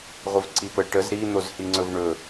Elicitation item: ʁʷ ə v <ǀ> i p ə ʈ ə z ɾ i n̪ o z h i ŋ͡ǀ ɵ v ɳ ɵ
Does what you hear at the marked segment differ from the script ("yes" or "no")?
no